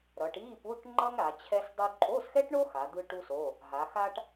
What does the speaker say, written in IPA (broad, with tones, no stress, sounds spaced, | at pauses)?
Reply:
ɾ ʌ˩˧ ʈ i˧˥˧ p u˧˥˧ ʈ ŋ͡ǃ ʌ˥ ŋ ɾ a˩˧ t͡ɕʰ ɛ˥ s dˤ u˥ ǃʼ o˧˥˧ s x ɛ˥ ʈ ɳ o˥ x a˩˧ d̪ ɯ˥ ʈ u˥ s o˧˥˧ | ɦ a˩˧ x a˥ ʈ